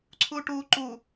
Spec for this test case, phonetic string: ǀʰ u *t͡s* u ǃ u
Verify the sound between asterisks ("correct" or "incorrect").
incorrect